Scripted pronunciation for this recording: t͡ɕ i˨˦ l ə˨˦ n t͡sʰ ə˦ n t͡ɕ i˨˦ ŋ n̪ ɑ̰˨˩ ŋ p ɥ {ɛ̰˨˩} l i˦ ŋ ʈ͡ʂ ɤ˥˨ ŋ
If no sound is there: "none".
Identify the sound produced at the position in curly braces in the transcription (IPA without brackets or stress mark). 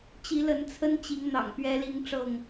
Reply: ɛ˦